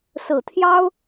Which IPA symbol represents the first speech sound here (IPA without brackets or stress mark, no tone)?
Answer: s